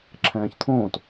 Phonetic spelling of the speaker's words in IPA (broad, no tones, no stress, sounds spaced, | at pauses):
ǁʰ ɛ̃ː ç t̪ʰ õː t